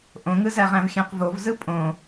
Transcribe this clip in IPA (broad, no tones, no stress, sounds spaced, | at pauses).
ʔ õ ŋ ɯ z æ ʁ æ̃ v xʲ æ̃ q v o v z ɯ pʼ õ